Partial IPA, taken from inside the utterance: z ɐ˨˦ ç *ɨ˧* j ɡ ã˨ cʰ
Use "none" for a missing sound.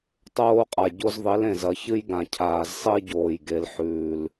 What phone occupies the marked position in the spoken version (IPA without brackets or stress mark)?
ɨ˦